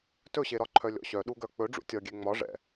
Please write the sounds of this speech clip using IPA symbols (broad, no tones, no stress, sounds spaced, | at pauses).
t ɵ ɕ e ɾ ɒ ǃʰ œ lʲ ɔ̰ ɕ œ ɗ u ɡ œ k͡p ɵ ɖ͡ʐ ṵ tʲ ɒ ɡʲ e ŋ͡m ɒ ʐ ɛ̰